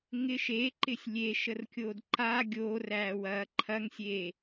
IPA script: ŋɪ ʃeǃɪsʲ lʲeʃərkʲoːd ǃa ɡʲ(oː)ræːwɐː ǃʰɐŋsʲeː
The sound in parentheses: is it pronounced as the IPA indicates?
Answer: yes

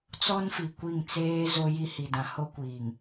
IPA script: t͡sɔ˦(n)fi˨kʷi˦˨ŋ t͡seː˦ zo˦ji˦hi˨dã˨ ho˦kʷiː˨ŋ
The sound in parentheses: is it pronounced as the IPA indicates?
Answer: yes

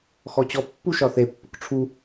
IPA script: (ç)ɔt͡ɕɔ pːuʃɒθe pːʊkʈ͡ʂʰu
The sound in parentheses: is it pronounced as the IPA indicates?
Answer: no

